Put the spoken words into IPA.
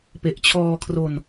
p e˨˩ ʔ t͡ɕʰ ɔː˧ kʰ r o˧ n

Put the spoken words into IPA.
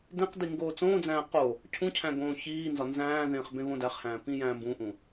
d ẽ q d i ŋ ɡ oː t͡s õː d͡z æ̃ː q o | cʰ ũ cʰ æ̃ ɡ õː ç iː n z ɒ n z æ̃ː ð ẽː χ b ẽ β õ d æ χ h æ̃ː p ĩ j æ̃ː m b ũ ʔ ũ

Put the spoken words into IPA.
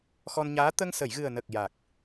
x ɔ˧ n ɲ aː˧˥ t̪ ə˧ ŋ s ə˨˩˨ j ɣ ɨ˨˩ ə̯ n ə˨˩ k̚ j a˨˩ k̚

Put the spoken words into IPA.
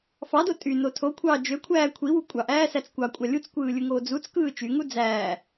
f ɑ d o tʼ y n o tʰ o kʷʰ ɑː d͡ʒ ø kʷʰ æː kʷʰ i w u kʷʼ ɑ ʔ æː s æ t͡s kʷ ɑ kʷʼ ɑ lʲ u t͡s kʷ ɯː lʲ ɯ ŋ oː d͡z u t͡s k ɯː t͡ʃ y ŋ u d͡z æː

